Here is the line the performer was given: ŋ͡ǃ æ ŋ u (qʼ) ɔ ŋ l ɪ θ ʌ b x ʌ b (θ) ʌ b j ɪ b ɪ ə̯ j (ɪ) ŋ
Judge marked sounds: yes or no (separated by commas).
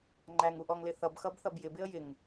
no, yes, yes